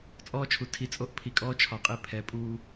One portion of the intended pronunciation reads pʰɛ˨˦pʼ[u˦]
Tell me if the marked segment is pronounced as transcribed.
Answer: no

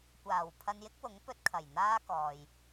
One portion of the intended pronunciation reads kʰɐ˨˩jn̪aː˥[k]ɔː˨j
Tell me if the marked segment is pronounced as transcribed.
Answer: yes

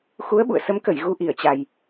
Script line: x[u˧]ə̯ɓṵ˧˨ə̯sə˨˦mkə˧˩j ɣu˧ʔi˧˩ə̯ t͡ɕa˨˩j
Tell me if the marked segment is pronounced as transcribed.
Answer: no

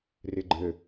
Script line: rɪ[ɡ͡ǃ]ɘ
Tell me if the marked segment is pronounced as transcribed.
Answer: yes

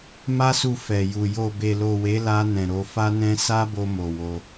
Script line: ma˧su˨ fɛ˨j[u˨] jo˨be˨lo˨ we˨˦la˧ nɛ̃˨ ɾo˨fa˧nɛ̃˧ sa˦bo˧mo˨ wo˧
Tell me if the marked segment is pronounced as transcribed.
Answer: yes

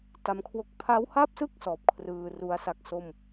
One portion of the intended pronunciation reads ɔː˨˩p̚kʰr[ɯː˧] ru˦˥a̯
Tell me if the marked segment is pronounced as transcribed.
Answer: yes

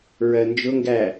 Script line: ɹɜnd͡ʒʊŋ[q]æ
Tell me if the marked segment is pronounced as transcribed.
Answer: no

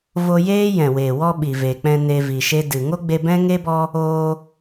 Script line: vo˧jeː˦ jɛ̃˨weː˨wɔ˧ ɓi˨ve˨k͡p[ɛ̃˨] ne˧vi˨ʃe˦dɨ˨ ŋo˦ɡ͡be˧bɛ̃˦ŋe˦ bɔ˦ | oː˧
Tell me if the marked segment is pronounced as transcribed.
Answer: no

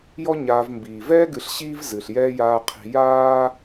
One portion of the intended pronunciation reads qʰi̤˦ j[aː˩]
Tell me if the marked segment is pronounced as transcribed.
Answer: no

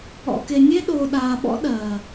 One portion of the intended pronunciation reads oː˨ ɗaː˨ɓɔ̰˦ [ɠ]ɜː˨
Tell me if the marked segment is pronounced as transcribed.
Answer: no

